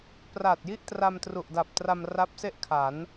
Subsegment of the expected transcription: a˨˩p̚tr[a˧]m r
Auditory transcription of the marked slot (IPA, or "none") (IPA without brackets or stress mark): a˧